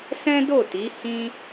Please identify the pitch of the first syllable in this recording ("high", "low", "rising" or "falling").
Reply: high